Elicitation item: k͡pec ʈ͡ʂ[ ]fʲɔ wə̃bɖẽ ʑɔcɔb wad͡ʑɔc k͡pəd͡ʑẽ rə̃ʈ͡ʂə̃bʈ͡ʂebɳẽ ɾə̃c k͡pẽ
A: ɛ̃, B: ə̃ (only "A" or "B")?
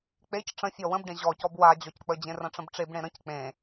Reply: B